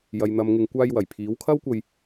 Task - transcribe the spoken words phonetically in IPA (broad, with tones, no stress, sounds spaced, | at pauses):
j ɐ˨ j n̪ ɐ˨ m ŋ ɪ˨ ŋ kʷ aː˧ j w ɐ˨˩ j pʰ iː˨˥ w kʰ ɐ˥ w kʷ ɐ˧ j